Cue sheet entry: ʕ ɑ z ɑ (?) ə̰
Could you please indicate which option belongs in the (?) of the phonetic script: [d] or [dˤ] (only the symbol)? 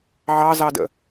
d